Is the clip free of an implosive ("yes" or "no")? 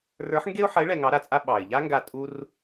no